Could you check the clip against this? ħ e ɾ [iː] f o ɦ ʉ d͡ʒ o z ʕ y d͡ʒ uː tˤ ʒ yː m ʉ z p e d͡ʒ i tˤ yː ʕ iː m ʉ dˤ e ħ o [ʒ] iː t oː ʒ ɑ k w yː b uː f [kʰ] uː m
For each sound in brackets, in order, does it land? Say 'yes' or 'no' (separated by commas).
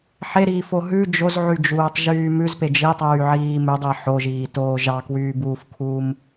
yes, yes, yes